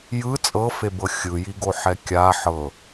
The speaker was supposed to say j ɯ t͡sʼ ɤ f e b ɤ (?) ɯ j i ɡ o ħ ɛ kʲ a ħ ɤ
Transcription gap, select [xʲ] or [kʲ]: xʲ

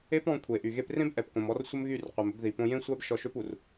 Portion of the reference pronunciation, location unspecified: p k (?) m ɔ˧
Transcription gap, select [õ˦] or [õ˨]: õ˨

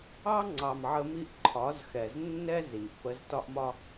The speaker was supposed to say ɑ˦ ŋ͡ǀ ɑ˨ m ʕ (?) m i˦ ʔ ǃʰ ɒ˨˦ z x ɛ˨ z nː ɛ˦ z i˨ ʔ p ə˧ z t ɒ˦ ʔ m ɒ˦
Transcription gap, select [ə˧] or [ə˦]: ə˧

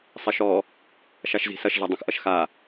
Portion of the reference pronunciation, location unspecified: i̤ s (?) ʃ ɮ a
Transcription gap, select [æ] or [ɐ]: ɐ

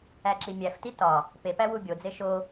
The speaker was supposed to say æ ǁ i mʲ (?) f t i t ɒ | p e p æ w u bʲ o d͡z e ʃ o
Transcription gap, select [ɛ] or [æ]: æ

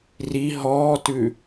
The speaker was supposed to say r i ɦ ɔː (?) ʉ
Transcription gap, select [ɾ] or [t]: t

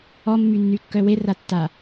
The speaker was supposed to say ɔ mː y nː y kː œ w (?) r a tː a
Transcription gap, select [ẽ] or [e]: e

